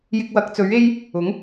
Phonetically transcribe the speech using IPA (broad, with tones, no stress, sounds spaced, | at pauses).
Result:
j ɪ˧ k̚ w ɐ˨˥ k̚ t͡s ɵ˨˥ ɥ e˥ j | ʊ˨˥ ŋ